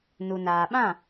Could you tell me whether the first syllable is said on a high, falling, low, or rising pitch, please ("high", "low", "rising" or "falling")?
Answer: low